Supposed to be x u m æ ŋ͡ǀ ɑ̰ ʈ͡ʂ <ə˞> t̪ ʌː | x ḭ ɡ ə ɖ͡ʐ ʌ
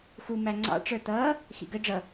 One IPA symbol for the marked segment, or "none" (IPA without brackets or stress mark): ə˞